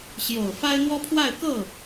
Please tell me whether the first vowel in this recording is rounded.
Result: yes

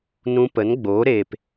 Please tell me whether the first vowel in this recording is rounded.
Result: yes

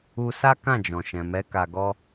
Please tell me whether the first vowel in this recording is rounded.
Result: yes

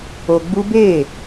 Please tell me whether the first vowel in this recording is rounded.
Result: yes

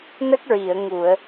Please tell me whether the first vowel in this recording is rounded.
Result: no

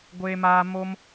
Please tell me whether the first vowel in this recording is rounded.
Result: no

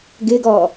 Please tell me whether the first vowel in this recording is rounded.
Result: no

